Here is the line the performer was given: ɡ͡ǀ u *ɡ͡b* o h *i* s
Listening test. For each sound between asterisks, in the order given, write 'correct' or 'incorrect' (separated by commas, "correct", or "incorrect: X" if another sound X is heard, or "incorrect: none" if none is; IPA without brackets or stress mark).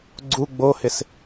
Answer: correct, incorrect: ɪ